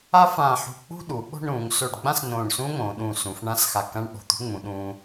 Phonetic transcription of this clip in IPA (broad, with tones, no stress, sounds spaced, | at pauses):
a˥ f ãː˧˩ ħ ṳ˧˩ k͡p ṳ˥˧ ɗ u˩˧ ɓ o̤˥˧ ɳ ɾ ũː˩˧ ŋ s o˧˩ ɖ ɡ͡b ã˥˧ s n õː˧˩ ɳ s ũː˥ ŋ õː˩˧ ɗ ũː˧˩ s ũ˩˧ f ɳ ã˥˧ s x a˧˩ k ã˥˧ ɳ ɓ o̤˧˩ t̪ ṳ˥ ŋ͡m ũ˩˧ ɗ ũː˧